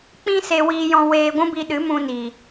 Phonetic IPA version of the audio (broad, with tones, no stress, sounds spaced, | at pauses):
k͡p ĩ˦ s e˧ w iː˧ j ɔ̃˧ w eː˧ ɡʷ ũ˦ b i˧ ɗ ɨ˨˦ m ũ˧ n i˨